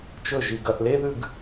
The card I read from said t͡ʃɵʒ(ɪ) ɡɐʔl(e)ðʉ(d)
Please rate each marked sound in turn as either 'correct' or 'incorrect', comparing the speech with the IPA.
incorrect: i, correct, incorrect: ɡ

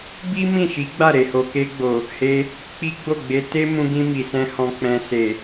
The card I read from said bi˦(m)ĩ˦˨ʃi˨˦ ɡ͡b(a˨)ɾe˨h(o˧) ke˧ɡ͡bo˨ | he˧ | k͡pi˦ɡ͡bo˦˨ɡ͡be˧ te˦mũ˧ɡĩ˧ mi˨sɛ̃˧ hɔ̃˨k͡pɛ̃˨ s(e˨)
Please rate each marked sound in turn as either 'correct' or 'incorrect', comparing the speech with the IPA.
correct, incorrect: a˦˨, incorrect: o˨, correct

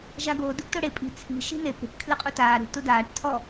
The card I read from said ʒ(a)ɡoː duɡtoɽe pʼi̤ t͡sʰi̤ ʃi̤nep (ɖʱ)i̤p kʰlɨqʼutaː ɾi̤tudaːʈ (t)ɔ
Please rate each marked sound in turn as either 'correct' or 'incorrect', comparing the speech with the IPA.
correct, incorrect: ɽ, incorrect: tʰ

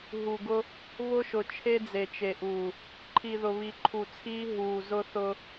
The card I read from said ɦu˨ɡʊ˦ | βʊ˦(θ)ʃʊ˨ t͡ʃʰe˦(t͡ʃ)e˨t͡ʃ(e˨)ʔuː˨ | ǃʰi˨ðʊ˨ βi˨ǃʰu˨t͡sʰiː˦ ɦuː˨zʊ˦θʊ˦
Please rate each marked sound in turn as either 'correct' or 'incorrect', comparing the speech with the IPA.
incorrect: none, incorrect: d͡z, correct

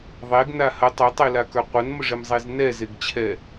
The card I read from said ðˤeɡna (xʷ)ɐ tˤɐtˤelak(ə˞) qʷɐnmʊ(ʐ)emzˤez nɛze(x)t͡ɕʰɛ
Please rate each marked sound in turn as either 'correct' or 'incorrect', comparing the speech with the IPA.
incorrect: h, correct, correct, incorrect: ɡ

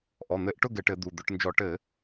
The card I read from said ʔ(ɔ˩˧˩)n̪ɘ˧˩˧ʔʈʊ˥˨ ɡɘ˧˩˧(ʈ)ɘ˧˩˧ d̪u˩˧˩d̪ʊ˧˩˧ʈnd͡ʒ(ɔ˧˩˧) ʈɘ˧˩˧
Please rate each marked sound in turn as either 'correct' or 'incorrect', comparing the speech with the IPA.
correct, correct, correct

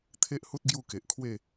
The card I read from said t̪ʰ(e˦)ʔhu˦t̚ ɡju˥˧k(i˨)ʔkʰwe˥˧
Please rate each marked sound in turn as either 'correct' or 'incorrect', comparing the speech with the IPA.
correct, incorrect: e˨

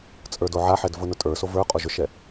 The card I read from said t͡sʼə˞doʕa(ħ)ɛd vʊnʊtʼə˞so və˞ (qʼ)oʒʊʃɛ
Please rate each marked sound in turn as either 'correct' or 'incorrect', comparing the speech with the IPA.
correct, correct

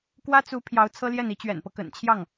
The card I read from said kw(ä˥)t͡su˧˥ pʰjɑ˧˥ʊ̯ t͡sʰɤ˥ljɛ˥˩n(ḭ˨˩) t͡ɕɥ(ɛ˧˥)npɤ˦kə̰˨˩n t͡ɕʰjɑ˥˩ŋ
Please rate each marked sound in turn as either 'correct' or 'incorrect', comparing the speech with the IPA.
correct, incorrect: i˧˥, incorrect: ɛ̰˨˩

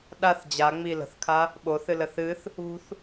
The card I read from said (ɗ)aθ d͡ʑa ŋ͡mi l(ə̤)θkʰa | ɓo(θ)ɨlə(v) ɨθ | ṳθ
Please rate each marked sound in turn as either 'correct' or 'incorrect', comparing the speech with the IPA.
correct, correct, correct, incorrect: θ

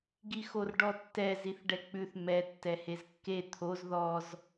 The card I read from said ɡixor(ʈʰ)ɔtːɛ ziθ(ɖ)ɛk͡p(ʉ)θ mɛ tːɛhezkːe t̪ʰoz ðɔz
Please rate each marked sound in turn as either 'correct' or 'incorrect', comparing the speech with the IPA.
incorrect: ɖ, correct, correct

